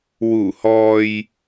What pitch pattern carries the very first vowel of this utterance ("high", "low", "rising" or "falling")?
low